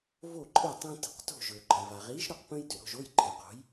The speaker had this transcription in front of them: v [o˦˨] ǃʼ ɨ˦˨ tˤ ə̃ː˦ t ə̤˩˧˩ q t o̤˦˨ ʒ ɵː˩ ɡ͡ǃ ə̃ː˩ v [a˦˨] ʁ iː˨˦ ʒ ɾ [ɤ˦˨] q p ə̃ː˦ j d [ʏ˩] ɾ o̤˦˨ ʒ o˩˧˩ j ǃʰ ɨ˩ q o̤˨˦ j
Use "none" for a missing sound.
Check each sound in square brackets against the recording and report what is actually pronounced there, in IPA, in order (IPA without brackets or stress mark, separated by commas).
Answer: o˦˨, a˩, ɵ˦˨, ʏ˩